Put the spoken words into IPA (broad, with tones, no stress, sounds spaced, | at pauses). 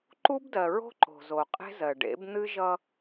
ǃ u˦ b d ɜ˨ ɹ o̤˦ ǃ o̤˨ z o˨ qʼ e̤˦ z ɜ˨ ɖ ḛ˨˦ b n̪ ɨ˦ ʒ ʌ˦